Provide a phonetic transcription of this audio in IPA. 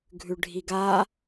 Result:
ɡʱ ʉ ɖʱ i ɡ a

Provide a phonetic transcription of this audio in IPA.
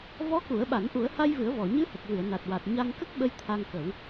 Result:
v ɔ˧˥ k u˨˩˦ ə̯ ɓ a˨˩˦ n ʔ u˨˩˦ ə̯ h a˧ j v ɨ˨˩˦ ə̯ v ɔ˨˩˨ ɲ ɨ˧˥ h ə˨˩ k̚ v ɨ˨˩˨ ə̯ n a˨˩ t̚ w a˨˩ t̚ ɲ a˧ ŋ k ə˦˥ k̚ ɓ ə˧ j t̪ʰ a˧ ŋ k ə˨˩˦ w

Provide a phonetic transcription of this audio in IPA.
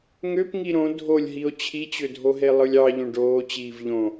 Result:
ŋ ø p ŋ i ɾ õ dʱ o lʲ ɦ i o̯ t͡ɕʰ i t͡ɕ ø dʱ o ɦ e lˠ ɯ lʲ ɑ ʎ õ ɖ oː t͡ɕ iː v ʎ õ

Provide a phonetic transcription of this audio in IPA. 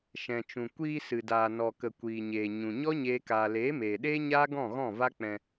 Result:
ʃ ɛ̃˨ t͡ʃ ũ˨ kʷ iː˧ s ɨ˨ d aː˨ n ɔ˨ k ə˨ kʷ iː˨ ɲ eː˨ ɲ ũ˨ ɲ ɔ˦ ɲ eː˦ k aː˧ l eː˨˦ m eː˨ ɗ eː˦ ɲ aː˦ ɡ ɔ̃˦˨ ɣ ɔ̃˦˨ v a˦ k͡p ɛ̃˧

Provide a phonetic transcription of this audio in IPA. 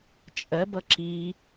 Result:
t͡ʃʼ ɜ b ʌ ǁ i

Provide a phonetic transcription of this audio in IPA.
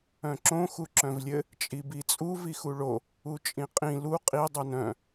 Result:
œ̃ ǁ õ x u ǁ œ̃ v lʲ ɘ | t͡ʃʼ i b i t͡sʼ u v i x u ɭ o | u t͡ʃʼ ĩ qʼ ĩ l u qʼ i dˤ u n œ̃

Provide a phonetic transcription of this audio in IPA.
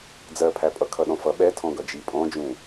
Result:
d͡z ɜ pʰ æ pʼ ʌ kʰ ʌ ɗ ɔ̃ f ʌ ɓ ɛ tʰ ɔ̃ ɡ ʌ d͡ʒ i pʼ ɔ̃ d͡ʒ ũ

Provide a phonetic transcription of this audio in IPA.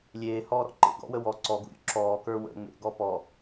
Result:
lʲ eː h ɔː ɾ ɔ̰ ǃ ḛ ɡ ɔ̰ w ə w ɔ ǀ ɔ ɡ ṵ ɾʲ ṵ ǁ ɔː k ə˞ w ə̰ ŋ͡m ḛ ɡ ɔ p ɔ

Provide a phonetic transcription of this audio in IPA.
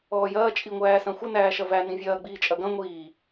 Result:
ɔː j ɐː t͡ʃʼ i ŋʷ æː s ɐ̃ xʷ ə n æː ʃ ɐ v æ n ĩ vʲ ɐː ɡ͡b iː t͡ʃʼ ɐ ɡ ɐ̃ ŋʷ iː

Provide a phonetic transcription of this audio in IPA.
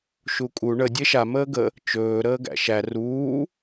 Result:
ʃ u kʼ u ɳ ə dʲ e ʃ a m əː ɡ ə | t͡ʃ ɵː ɾ əː ɡ æ̰ ʃ æ r uː

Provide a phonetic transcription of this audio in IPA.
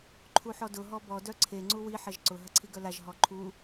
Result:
ǃʰ u ħ ɔ d ʊ ɦ ɔ b ɔ d œ ǀʰ e ŋ͡ǀ u w i ħ ɐ ʒ ǀ ʊ ɦ ɐ ǀʰ i ɡ œ l a ʒ ɦ ɔ ǃʰ u

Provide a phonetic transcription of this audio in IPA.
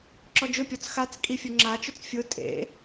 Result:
ǁ ɔ d͡ʒ ʊ pʲ ɔ t͡s x a t͡s kʼ i fʲ o ŋ͡ǁ a t͡ʃ ʊ t͡s fʲ ʊ tʼ ḛ

